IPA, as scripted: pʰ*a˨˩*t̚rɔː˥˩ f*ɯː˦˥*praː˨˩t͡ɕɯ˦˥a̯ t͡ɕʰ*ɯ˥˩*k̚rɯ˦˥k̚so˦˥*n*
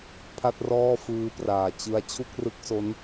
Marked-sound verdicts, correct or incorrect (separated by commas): incorrect, correct, incorrect, correct